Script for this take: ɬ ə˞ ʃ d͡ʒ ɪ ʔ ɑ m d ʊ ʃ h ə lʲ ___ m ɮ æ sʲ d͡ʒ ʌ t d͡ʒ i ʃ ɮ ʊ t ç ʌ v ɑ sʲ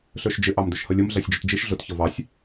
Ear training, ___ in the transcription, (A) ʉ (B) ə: B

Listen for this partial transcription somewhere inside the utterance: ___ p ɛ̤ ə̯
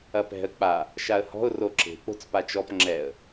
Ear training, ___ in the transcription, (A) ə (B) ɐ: B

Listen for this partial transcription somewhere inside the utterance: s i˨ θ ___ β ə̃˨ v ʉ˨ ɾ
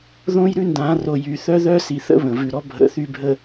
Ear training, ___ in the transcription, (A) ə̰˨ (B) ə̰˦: B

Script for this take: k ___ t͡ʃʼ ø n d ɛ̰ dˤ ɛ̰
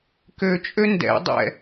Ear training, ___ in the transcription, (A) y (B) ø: B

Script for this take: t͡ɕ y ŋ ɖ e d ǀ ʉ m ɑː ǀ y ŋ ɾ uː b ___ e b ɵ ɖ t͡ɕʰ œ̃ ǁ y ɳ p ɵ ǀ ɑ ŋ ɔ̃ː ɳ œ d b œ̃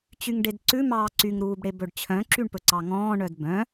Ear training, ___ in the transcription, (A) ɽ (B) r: A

